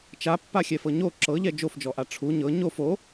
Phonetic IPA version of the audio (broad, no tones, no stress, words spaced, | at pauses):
t͡ʃapːaxʲɛfɤ ɲo ǁɤʎɛ d͡ʒofd͡ʒɔʔa ʈ͡ʂʰu ɲɤ ɲof o